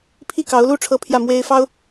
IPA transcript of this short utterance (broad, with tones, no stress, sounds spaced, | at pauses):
pʰ i˥˩ k ɑ˧˥ ʊ̯ l u˥˩ ʈ͡ʂʰ ɤ˥ pʰ j ä˥˩ m w e˥ ɪ̯ f ɑ˥ ʊ̯